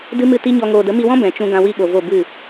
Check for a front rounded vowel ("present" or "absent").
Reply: absent